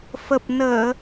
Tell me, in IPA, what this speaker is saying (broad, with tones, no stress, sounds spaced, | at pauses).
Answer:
f ə˨˩ p̚ n əː˧˩˨